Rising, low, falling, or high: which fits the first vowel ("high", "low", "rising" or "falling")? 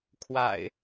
low